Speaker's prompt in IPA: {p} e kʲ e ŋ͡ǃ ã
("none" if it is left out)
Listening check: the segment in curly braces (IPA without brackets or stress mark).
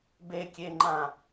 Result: b